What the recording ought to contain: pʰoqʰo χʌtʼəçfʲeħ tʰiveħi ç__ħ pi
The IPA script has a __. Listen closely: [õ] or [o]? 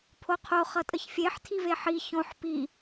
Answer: õ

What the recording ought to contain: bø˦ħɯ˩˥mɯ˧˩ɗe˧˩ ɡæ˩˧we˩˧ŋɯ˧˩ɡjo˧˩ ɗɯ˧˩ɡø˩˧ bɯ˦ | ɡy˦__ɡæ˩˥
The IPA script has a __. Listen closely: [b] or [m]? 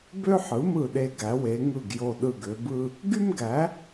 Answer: m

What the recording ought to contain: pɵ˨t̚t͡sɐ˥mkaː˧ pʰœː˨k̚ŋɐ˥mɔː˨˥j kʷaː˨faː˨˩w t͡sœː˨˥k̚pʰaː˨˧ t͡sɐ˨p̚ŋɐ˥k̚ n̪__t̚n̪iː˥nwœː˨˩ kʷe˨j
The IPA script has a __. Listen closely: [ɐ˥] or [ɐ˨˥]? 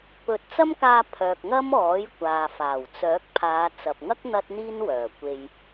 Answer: ɐ˥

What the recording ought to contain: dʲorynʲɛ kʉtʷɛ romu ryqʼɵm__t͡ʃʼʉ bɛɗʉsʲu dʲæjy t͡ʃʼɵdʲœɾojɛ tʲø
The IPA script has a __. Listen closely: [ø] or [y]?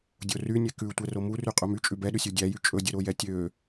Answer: y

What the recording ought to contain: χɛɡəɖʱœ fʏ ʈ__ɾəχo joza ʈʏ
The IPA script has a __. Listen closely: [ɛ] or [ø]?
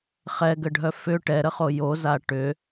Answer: ɛ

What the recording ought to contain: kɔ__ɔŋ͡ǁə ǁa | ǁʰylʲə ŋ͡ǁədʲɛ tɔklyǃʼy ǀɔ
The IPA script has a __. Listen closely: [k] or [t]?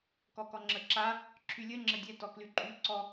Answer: k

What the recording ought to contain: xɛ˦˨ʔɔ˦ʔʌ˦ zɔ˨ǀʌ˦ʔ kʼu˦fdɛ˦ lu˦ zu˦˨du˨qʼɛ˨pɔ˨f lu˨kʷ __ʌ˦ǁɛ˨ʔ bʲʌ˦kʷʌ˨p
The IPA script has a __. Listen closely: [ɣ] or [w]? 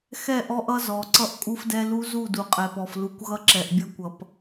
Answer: ɣ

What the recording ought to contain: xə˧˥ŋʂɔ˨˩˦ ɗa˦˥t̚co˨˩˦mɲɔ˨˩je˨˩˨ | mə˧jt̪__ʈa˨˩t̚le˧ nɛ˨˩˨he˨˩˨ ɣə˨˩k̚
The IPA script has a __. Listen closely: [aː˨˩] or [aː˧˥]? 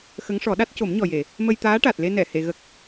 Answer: aː˧˥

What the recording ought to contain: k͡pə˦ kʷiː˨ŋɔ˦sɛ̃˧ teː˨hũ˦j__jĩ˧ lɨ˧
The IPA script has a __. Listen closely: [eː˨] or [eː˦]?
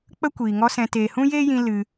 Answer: eː˦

